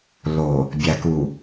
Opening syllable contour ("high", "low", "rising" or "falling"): low